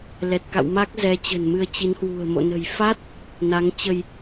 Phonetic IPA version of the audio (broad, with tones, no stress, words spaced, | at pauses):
lɛ˨˩t̚ka̰˧˨w ma˦˥k̚zɛ˨˦ t͡ɕə̤˨˩nmɨ˧ə̯t͡ɕi˨˦nhwṳ˨˩ə̯ mo̰˧˨nə̤˨˩j fa˦˥t̚ | na˨˦ŋt͡ɕə˧j